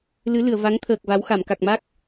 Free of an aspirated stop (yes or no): no